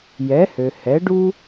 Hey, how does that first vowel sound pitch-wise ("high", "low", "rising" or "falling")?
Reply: rising